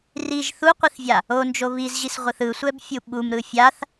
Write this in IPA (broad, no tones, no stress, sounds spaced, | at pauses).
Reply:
r i ʒ θ u qʷ i θ vʲ a | o n d͡ʒ o β i z ʑ i s ʁʷ ɯ θ ɯ sʷ ɛ b fʲ u ɓ u m ɾ ɯ fʲ a θ